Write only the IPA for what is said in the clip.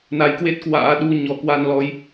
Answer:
n a˨˦ j k w e˦˥ t̚ k w a̰ː˧˥ ɗ u˧ ɲ ɔ˧ k w a˧ n l ɔ˨˦ j

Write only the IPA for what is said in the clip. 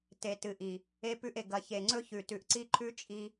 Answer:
t e˨ t ɨ˨ ʔ i˨ | e˦ p ʉ˦ ʔ e˨ ɡ ɐ˨ ç e˨ ŋ͡ǀ ɵ˦ ç ʉ˨ t ʉ˨ ʔ ǀ i˦ ǃʰ ʉ˦ t͡ʃʼ i˦

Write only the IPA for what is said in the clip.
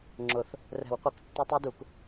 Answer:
ŋ͡ǁ ʊ˨˩˦ θ | r ɛ̤˨˩˦ w qʷ ɪ˨˩˦ k tː ɪ˦˥ tˤ i˦˥ d u˨˩˦ k

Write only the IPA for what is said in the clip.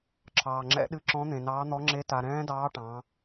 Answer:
ǁʰ ɑː˧ ŋ͡ǁ ɛ̰˦˥ ɗ ɨ˦˥ ǁ ɔ̃˦˥ n̪ ẽ˧ n ɑː˦˥ n̪ ɔ˦˥ ŋ͡ǁ e˦˥ t a˧ ɾ ɛ̃ː˦˥ d ɑː˦˥ ʈ ɑ̃˦˥

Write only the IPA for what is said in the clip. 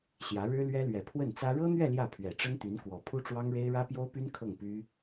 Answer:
ɕ j ä˧˥ ɻ ɻ̩˥ l ɥ ɛ˥ l ɥ ɛ˨˩ pʰ w ə˥˩ n t͡s ä˥ ɻ ɤ˥ n̪ ɥ ɛ˥˧ l j ä˥˩ pʰ ɥ ɛ˨˩ ʈ͡ʂ ə˥ n t̪ y˧˥ n k w ɔ˨˩ pʰ u˥ ʈ͡ʂ w ɑ˥ ŋ ɻ e˥ ɪ̯ ɻ ä˥ p j o˥ ʊ̯ p y˥ n kʰ ɤ˥˩ ŋ p y˥

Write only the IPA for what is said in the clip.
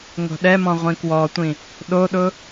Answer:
ŋ o̤ ɗ ɛ m ɔ̃ ʁʷ ĩ k w ɔ tʷ ĩ | ɗ o ɗ ʊ

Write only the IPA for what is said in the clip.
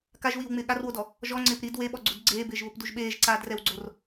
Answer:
k a ʒ w iː w ŋ͡m ɪː ɠ a r w o d ɔ | ʒ ɔ ŋ͡ǀ ɪː p ɾ i d w e ɓ ɔ ɡ͡ǀ u d ɡ͡ǀ eː b ɪː ʒ β ʊ p d u ʒ ɓ eː ʒ ǀ aː d r ɛ w ɡ͡ǀ o r

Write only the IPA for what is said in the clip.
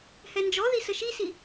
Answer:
h ɛ n d͡ʒ ɔ ð i s ə ʃ i s i

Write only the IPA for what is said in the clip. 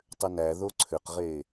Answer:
tˤ ʏ n æ ð o ǀʰ ʏ q ʁ e

